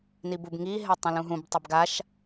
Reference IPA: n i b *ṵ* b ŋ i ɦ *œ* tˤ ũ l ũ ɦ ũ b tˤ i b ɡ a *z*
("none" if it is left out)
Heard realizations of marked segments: u, ɛ, ʃ

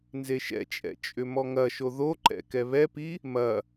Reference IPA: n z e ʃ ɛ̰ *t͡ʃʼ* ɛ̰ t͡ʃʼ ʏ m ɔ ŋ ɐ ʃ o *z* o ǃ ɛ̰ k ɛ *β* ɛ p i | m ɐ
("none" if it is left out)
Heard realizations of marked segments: t͡ʃʼ, ð, β

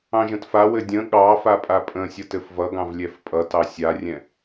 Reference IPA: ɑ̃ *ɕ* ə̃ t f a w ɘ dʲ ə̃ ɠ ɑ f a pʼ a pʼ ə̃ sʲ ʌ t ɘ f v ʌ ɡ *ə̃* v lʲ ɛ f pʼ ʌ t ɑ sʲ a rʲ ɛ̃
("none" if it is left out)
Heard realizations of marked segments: ʒ, ɑ̃

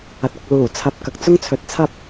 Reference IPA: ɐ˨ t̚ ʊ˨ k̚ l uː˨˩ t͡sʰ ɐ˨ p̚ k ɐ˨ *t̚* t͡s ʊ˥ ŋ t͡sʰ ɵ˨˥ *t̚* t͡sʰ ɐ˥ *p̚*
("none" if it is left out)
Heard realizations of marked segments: k̚, t̚, p̚

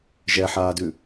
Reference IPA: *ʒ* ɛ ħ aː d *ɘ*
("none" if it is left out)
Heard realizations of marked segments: ʒ, ʉ

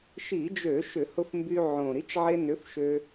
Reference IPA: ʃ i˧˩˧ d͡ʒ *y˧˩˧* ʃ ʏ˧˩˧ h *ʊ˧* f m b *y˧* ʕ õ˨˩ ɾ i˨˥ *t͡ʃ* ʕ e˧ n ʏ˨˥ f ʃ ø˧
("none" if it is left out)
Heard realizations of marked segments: ø˧˩˧, ʊ˧, y˧, t͡ʃ

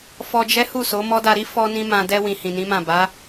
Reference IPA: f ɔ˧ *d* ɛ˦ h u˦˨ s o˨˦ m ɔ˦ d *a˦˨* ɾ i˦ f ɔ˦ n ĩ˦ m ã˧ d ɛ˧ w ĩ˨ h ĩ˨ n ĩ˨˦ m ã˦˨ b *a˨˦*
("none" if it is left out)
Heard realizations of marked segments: d͡ʒ, a˧, a˨˦

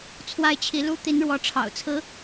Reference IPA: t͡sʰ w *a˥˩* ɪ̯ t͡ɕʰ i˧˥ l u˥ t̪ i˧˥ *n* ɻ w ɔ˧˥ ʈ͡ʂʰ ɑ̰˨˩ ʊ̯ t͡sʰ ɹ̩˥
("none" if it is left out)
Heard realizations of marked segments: a˥˩, n

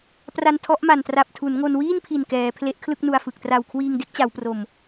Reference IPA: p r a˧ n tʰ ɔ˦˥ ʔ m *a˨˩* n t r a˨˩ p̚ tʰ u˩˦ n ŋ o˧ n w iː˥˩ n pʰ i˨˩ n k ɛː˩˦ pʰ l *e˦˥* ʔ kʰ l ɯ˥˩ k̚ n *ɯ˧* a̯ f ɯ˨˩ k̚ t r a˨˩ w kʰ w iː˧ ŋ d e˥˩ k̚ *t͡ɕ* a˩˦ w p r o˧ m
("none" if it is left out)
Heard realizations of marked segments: a˨˩, e˦˥, u˧, t͡ɕ

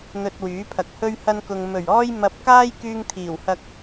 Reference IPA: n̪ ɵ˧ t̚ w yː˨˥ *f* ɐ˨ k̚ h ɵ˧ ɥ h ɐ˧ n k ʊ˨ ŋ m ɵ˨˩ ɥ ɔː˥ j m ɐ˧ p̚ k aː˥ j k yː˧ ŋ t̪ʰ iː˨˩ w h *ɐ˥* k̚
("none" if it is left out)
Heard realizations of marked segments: pʰ, ɐ˧

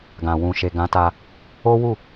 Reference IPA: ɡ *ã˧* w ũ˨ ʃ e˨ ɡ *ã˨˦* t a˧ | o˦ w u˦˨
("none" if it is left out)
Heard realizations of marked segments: ã˨, ã˨˦

